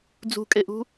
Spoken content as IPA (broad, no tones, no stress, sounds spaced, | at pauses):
d͡z ṳ kʼ e ʔ ṳ